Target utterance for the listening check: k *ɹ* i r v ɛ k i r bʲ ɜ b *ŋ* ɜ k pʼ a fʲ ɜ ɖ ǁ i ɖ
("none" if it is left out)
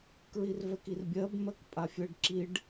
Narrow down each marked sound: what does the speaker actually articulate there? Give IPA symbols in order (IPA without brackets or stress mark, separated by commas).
ɹ, m